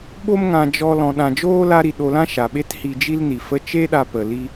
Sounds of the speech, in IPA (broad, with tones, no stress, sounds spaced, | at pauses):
ɓ o˦ m ŋ ã˧ d͡ʒ ɔ˧ l ɔ̃˨ ɗ ã˨ d͡ʒ oː˦ l a˧ ɾ i˨ ɗ o˧ l ã˦ ʃ a˨ ɓ e˦ t h i˧ d͡ʒ i˦ l n i˨ f ə˦ t͡ʃ e˦ ɗ a˧ p ə˨ l i˦